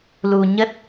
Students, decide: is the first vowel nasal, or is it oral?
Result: oral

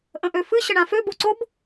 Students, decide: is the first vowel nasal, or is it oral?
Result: nasal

